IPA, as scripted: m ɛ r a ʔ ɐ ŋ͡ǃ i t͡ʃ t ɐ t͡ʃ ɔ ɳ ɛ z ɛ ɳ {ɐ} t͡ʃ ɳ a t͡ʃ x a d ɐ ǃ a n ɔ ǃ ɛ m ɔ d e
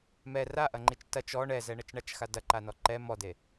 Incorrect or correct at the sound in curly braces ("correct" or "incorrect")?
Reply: correct